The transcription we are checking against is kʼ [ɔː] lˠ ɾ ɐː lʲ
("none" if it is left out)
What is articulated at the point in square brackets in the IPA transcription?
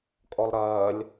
ɔ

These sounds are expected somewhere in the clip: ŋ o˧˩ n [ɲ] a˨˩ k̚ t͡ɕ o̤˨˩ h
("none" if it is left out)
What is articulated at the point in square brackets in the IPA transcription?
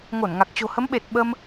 ŋ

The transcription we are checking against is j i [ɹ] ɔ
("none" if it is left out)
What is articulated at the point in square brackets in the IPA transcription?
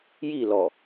l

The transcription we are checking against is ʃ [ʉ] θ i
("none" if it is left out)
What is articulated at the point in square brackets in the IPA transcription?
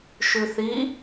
ʉ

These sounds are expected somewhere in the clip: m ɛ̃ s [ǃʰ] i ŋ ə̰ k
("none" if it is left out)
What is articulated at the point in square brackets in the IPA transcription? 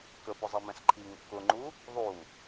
ǃʰ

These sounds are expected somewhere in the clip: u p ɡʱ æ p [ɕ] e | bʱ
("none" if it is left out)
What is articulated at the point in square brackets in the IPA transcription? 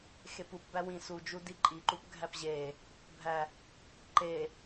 ʑ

